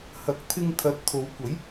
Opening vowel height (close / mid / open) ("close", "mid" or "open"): open